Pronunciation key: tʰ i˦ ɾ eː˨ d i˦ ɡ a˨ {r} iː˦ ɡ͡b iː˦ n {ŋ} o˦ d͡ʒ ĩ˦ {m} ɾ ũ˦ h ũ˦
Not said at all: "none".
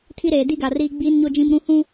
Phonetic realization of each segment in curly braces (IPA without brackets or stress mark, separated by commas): r, ɲ, m